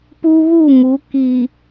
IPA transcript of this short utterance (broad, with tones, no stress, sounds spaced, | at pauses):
p u˦ β u˦˨ m u˨˦ k i˨